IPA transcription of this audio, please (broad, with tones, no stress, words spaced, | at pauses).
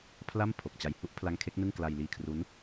pʰla˥˩m pʰo˨˩k̚t͡ɕa˧j hu˦˥ʔpʰla˦˥ŋkʰe˦˥k̚ nɯ˥˩ŋ kla˧jliː˧kʰru˦˥n